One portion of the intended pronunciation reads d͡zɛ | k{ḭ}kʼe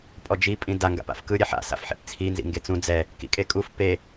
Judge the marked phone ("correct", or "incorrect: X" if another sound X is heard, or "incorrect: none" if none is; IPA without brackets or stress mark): correct